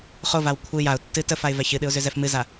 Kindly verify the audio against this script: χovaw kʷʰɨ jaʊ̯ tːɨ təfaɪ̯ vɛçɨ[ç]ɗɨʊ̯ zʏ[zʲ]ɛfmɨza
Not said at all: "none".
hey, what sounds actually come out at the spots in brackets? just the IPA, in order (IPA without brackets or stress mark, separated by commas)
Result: none, z